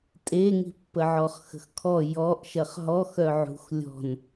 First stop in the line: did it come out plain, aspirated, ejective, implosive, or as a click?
ejective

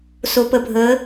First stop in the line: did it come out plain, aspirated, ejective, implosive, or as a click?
plain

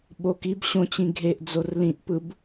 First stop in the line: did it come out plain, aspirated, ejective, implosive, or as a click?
implosive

